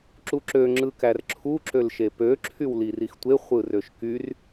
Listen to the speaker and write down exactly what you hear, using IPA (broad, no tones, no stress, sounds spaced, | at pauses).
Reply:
ǁ u ǁ ø ŋ͡ǁ ɯ k æ r ǁʰ u ǁ ø l ʃ e p ø ǁʰ y w l i r i x tʷ e χʷ ɯ r ø ʃ k y r